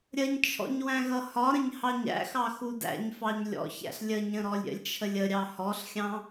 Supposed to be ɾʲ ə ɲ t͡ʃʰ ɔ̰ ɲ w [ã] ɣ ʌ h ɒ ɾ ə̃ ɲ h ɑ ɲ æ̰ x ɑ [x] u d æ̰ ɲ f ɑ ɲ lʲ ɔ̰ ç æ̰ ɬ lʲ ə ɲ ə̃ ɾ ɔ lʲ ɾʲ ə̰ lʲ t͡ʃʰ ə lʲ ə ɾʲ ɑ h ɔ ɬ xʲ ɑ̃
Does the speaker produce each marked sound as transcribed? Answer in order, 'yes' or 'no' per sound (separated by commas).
no, yes